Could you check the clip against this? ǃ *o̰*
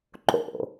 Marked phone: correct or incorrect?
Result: correct